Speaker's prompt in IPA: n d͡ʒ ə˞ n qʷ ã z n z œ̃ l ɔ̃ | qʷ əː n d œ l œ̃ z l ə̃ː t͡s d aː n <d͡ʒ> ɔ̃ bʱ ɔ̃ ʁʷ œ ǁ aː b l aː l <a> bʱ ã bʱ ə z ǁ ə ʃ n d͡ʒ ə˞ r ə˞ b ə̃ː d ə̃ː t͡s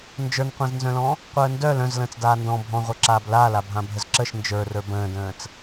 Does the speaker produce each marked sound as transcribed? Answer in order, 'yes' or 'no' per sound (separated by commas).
no, yes